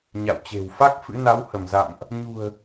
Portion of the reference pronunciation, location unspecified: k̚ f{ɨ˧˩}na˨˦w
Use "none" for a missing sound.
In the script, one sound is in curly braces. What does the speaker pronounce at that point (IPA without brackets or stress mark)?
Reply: ɨ̰˧˥